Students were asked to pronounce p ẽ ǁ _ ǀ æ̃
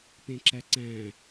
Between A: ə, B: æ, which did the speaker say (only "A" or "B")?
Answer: B